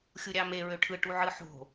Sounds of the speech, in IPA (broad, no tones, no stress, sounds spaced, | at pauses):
xʲ u ɾʲ ɑ m e ɹ ø ʈʰ ɯ ʈ u ʕ ɯ ħ o̤